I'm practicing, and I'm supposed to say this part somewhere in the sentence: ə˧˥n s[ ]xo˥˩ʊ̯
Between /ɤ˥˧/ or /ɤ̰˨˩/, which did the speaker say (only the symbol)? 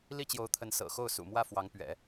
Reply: ɤ̰˨˩